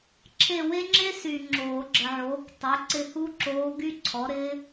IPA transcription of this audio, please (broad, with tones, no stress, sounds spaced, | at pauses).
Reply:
ǁʰ e˦˨ w e˥ ŋ͡ǁ e˥ s y˨ ŋ͡ǁ oː˨˩˦ ɡ͡ǁ ə˨ ʕ oː˩˥ k tˤ e˩˥ ǀ ɪ˦˨ h u˥ ǁ oː˧˥ ɡ y˥ ǀʰ ɔ˩˥ ɾ ɪː˧˥